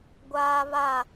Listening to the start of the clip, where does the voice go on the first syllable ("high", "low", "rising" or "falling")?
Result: high